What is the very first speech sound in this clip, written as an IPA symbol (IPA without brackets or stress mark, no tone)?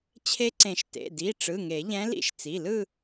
t͡ɕʰ